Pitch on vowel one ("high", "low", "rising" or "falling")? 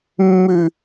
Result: low